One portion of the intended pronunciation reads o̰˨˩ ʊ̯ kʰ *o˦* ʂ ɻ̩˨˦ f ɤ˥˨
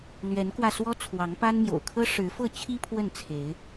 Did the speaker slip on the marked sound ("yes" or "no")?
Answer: yes